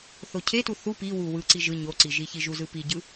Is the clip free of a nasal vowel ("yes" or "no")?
yes